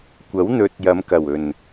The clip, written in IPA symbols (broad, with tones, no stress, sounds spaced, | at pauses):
kʷ ɐ˨˥ w n̪ ɵ˨˥ t̚ j ɐ˨˧ m k ɐ˨˩ w ɵ˨˩ n